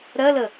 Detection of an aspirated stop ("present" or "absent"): absent